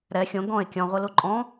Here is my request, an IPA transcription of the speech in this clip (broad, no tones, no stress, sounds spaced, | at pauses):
ɾ ɛ xʲ õ ɡ ɔ̃ e̯ kʲ ɔ̃ ʁʷ ɯ l u ǃʼ ɔ̃